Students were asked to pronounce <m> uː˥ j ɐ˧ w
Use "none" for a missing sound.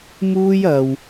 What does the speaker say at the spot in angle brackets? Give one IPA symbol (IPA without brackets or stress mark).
m